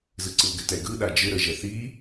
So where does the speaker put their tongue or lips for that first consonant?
tongue tip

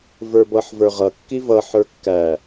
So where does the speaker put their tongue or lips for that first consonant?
lips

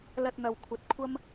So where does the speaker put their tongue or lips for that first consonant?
tongue tip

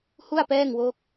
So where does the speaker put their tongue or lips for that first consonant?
throat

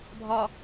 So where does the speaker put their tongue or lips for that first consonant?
lips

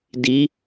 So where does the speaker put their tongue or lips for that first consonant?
tongue tip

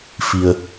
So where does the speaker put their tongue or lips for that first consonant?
lips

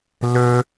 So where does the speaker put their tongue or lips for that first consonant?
tongue tip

